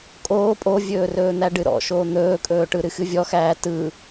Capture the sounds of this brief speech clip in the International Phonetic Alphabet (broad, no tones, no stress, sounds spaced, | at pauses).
kʼ oː pʼ o vʲ ɵː r ɵː n̪ æ ɖ ɨ ɾ ɔ̰ ʃ oː n̪ ɵː kʼ ɵː ʈ ɯ ɾ ɨ x ɨ vʲ ɔ x æː t ɯ